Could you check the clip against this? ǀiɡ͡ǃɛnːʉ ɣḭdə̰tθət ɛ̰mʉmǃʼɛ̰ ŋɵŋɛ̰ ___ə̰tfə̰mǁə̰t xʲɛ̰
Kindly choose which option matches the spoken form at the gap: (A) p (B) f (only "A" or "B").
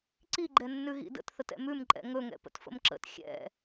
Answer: A